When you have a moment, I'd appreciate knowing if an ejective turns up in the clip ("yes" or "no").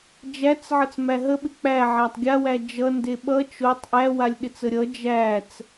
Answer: no